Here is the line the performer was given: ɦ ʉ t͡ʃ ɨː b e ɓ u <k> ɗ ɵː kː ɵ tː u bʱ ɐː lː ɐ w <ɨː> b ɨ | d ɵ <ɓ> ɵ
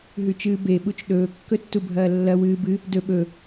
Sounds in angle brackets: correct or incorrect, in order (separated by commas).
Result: incorrect, correct, correct